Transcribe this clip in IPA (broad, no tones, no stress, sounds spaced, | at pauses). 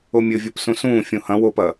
o mʲ ɘ vʲ o p s ũ s ũː fʲ ũ h ɐ̃ w o p ɐ